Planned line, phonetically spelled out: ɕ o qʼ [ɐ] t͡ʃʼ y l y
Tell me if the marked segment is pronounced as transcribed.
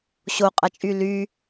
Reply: yes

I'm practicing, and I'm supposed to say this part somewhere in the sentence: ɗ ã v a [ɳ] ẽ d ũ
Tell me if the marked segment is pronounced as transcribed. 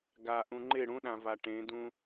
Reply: no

